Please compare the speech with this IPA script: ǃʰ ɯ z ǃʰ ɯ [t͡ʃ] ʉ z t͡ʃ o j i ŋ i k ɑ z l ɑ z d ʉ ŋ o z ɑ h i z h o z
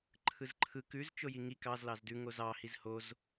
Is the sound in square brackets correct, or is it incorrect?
incorrect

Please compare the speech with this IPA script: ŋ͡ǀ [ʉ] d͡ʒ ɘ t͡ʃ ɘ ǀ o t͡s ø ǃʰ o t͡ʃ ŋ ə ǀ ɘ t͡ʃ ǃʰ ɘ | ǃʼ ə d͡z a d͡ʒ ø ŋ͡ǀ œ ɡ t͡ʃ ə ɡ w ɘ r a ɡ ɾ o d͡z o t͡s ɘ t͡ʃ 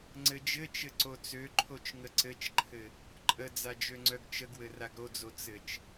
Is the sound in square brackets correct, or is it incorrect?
incorrect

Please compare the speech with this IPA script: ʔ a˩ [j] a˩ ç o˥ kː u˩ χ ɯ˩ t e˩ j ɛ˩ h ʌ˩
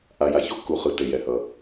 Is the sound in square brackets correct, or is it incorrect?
correct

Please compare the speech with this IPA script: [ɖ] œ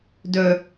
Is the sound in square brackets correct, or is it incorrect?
incorrect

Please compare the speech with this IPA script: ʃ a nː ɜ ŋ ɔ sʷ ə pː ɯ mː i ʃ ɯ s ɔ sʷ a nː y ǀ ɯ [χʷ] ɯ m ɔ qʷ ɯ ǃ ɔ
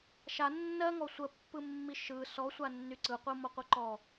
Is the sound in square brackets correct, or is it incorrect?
incorrect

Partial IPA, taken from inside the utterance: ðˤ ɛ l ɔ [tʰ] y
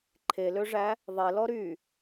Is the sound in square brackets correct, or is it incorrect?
incorrect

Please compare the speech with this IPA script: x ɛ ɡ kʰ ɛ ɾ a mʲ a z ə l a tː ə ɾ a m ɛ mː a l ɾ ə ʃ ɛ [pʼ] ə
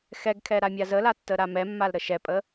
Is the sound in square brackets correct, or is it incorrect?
correct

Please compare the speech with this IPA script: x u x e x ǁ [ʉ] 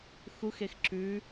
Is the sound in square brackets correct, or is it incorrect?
correct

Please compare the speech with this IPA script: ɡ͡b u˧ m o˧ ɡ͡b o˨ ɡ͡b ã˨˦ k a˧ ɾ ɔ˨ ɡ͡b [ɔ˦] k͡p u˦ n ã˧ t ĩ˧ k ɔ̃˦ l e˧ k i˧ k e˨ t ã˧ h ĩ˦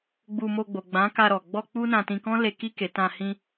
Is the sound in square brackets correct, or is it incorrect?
incorrect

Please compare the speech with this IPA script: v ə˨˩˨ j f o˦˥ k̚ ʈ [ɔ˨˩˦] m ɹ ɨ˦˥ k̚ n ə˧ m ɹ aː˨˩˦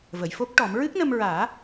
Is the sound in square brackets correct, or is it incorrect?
correct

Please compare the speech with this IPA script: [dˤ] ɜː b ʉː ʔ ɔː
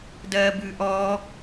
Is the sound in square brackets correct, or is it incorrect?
incorrect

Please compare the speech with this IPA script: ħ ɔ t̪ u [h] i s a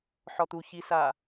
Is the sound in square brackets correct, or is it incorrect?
incorrect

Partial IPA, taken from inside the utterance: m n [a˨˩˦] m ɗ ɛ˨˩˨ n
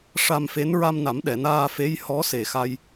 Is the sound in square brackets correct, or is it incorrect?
correct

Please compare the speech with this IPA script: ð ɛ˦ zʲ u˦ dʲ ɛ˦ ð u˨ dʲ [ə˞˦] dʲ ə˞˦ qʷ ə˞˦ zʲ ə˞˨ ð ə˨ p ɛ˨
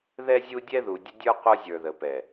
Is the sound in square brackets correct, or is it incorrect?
incorrect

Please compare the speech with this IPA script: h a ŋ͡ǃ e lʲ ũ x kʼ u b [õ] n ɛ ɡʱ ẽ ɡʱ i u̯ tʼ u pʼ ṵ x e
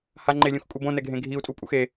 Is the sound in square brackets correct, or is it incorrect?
correct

